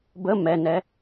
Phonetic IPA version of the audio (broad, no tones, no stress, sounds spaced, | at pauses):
b ə m ɛ n ɛ